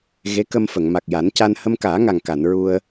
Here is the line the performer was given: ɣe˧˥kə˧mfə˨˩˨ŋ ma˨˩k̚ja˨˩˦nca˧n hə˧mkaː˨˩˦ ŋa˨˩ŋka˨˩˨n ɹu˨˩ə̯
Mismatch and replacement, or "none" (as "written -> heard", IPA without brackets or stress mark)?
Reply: u˨˩ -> u˧